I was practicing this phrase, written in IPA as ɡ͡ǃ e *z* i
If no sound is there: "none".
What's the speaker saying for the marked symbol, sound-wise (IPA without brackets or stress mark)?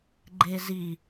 z